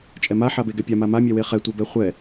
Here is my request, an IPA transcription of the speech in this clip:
t͡ʃʼ ɛ m a ħ a b e ɡ ɛ pʲ a m a m a mʲ ɛ w e χ ɛ tʷ ɛ b ɛ χʷ ɛ

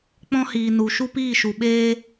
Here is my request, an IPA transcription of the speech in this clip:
k͡p ɔ̃˦ h iː˨ n u˨ ʃ u˦ p iː˦˨ ʃ u˨ ɓ eː˦

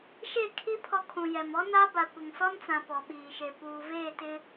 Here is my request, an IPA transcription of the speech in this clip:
ʃ e˦˨ kʰ i˦ pʰ ɔ˦ kʰ ũ˨ j ɛ˨ m ɔ˦ n a˦ b a˨ kʷ ɪ˨ ŋ s ɔ˦ n t͡s ã˨ p ɔ˨ ɓ iː˨ ʃ e˨ p uː˨ v eː˦˨ t ɪ˦

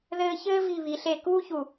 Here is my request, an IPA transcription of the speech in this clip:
ð ɘː˦ ç ɘː˦ v i˦˨ β i˨ ɬ e˦˨ k uː˦ ç u˨

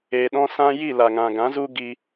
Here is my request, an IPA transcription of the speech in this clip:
eː˨ ɗ ɔ̃˧ s ã˧ j i˦˨ l a˨ ŋ ã˨ ɡ ã˨˦ z u˦ ɡ i˧

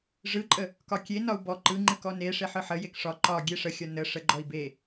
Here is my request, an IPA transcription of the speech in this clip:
ʐ ɯ ǃʼ ə | k ɒ kʲ e n ɒ u̯ b ɔ ǃ ɯ ŋ͡ǃ ɯ k ɔ n e ʂ e ħ ɯ ħ ə j e k ʂ ɒ ǃ ɒ ɡʲ e ʂ ə xʲ ɒ n ə ʂ ə ɡ͡ǃ ɔ i̯ b e

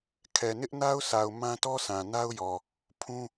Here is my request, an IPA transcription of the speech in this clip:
kʰ ɛ˨ n ɪ˦ ʔ n a˦ ʊ̯ sʰ a˨ ʊ̯ m ã˦ t ɔ˦ sʰ ã˨ n a˦ ʊ̯ j ɔ˨ | pʰ ũ˦

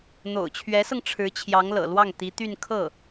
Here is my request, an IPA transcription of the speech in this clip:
n̪ o̰˨˩ ʊ̯ t͡ɕʰ ɥ ɛ˧˥ s ɤ˧ ŋ ʈ͡ʂʰ ɻ̩˧˥ t͡ɕʰ j ɑ˧˥ ŋ l ɤ̰˨˩ l w ɑ˥˩ ŋ t̪ i˧˥ t̪ y˥˧ n kʰ ɤ˥˩

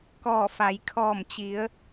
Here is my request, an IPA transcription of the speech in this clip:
k ɔː˧˩ f a˩˧ j kʰ ɔː˧˩ m t͡ɕ i˩˧ ə̯

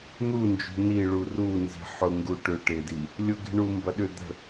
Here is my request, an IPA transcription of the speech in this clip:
n̪ u n d͡ʒ ṳ n i ɭ u r u n z i̤ ħ ʊ ŋ ɡ u ʈ ʏ ʈ ɪ d i | lʲ ʊ ɡ i̤ ɳ u m b ɐ ɗ ʏ d̪ ə̤

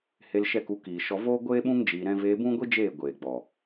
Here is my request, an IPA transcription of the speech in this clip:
h e˧ l ʃ ɛ˦˨ k u˧ k iː˨ ʃ ɔ˧ v oː˦ ɡʷ eː˦ ɓ ũ˦ ŋ d͡ʒ iː˧ ɾ ɛ̃˦ v eː˧ b ũ˦ ɡʷ i˦ d͡ʒ eː˦˨ ɡʷ eː˨ ɡ͡b ɔ˨

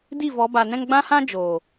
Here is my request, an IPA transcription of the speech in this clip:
d i˦˨ v ɔ˨˦ b a˨ n ɛ̃˧ ŋ ɡ͡b ã˦ h ã˦ d͡ʒ oː˨

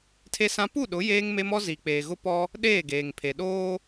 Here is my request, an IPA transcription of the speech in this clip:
tʰ e˦ s ã˦ p u˦˨ ɗ ʊ˨˦ j eː˦ ŋ m e˦ m ɔ˦ z i˨ k͡p eː˨ ɣ ʊ˦ p ɔ˦ | ɗ eː˦˨ ɡ eː˨ ŋ pʰ e˨ ɗ oː˦

